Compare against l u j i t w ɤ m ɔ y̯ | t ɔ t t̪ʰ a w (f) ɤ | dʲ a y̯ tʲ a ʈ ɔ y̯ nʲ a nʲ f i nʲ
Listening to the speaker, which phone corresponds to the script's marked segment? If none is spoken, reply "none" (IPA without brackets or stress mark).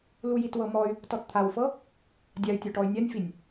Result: f